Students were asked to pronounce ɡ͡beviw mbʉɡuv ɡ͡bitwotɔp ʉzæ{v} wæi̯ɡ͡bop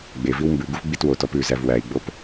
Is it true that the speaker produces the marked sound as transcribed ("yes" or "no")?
yes